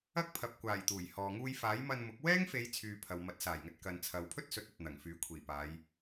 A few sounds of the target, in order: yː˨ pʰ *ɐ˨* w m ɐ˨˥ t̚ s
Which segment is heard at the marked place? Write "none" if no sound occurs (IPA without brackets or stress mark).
ɐ˨